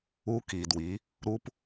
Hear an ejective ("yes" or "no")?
no